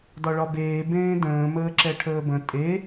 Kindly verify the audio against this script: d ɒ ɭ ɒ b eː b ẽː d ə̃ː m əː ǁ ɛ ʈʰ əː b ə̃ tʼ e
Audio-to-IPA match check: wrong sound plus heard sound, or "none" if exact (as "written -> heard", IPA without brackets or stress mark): none